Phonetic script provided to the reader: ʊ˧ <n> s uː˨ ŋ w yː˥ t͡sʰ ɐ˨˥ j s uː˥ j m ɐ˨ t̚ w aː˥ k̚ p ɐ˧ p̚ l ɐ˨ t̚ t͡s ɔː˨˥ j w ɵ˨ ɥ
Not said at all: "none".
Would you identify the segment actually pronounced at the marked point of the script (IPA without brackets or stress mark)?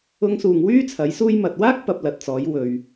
ŋ